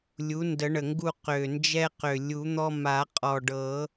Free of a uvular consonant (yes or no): no